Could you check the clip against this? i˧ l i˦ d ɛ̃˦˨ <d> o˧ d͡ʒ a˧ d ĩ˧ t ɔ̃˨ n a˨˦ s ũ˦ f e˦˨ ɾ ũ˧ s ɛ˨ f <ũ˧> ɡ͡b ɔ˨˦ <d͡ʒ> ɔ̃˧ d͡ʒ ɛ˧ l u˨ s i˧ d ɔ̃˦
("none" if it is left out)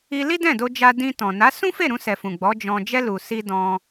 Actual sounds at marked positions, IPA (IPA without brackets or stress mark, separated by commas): d, ũ˨, d͡ʒ